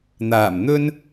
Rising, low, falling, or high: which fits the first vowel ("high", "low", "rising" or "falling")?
low